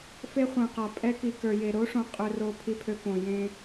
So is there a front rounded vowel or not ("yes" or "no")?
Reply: yes